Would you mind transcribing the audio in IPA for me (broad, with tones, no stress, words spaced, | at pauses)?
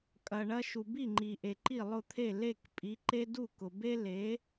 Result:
kʼɐ˩ ɳɐ˧ ʃu˩bi˥˩ŋ͡ǃi˩ ʔe˩ǃi˥˩lˠʊ˥˩t̪ʰe˥˩ le˥˩k pʼi˩˥ǃe˥ du˥˩kʊ˩be˥le˩˥